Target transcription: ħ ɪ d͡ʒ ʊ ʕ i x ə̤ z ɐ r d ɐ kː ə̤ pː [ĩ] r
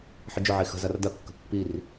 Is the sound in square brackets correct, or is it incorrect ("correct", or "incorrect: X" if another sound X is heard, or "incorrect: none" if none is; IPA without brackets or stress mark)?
incorrect: i